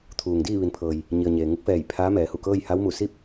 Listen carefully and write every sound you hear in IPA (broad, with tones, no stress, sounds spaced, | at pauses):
t̪ʰ uː˩ ŋ d iː˥˨ ʋ i˩˧ n pʰ ɤː˩ j | ɲ i˩ ə̯ ɲ eː˩ ŋ u˧˥ k̚ f ɛː˧˩ j pʰ aː˧˥ m ɛː˩˧ h u˧˩ k ɤː˥˨ j h a˧˥ w m u˧˩ s i˥˨ p̚